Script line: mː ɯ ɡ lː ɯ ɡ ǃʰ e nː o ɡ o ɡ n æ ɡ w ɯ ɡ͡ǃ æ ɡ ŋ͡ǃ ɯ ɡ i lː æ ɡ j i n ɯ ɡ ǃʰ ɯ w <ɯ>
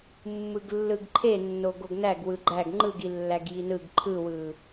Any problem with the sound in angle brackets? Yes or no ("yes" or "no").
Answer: no